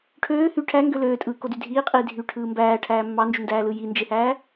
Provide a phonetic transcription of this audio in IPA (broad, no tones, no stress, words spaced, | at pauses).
ʈʰøː hy ʈʰæŋɡø løːtʼɯːkody dʱiːqʼiː dʱyʈʰɯː mbæːʈʰæː mːɑnd͡ʒundæːlɯ jind͡ʒehæː